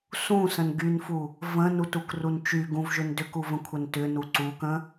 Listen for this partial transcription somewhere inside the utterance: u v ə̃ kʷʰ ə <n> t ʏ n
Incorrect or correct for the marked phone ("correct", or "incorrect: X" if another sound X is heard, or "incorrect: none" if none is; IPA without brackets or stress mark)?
correct